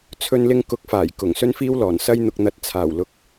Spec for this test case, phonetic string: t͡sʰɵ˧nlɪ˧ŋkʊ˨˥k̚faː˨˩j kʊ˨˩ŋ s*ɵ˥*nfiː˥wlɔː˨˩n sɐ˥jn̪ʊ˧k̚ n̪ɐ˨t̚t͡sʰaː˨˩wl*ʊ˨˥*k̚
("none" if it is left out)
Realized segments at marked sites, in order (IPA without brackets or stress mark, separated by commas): ɵ˥, ʊ˨˥